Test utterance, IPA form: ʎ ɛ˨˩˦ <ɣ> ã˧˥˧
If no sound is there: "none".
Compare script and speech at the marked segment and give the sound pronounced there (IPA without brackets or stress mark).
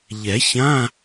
ç